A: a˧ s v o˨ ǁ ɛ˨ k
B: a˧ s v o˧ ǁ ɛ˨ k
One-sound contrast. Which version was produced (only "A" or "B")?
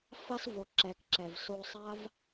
A